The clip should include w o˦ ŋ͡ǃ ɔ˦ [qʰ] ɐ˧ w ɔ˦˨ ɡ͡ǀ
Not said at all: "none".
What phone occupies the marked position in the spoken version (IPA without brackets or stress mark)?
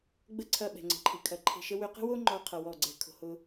qʰ